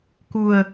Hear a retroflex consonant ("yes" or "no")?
no